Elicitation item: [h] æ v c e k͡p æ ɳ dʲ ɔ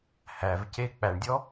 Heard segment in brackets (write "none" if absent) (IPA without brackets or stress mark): h